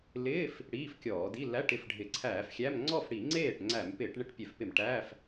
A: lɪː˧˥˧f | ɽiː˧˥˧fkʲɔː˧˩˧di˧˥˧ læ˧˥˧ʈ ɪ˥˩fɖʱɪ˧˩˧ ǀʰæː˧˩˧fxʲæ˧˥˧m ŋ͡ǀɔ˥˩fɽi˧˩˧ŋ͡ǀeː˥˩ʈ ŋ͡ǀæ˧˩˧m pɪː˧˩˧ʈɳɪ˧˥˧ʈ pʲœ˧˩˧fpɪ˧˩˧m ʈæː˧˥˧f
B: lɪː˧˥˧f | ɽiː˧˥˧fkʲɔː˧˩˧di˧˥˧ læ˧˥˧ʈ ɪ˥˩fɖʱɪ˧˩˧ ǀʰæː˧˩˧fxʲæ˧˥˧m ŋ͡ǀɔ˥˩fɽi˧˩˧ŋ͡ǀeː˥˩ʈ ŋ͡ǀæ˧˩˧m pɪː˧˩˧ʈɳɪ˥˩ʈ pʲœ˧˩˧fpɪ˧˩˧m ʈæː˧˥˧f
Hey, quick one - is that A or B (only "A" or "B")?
B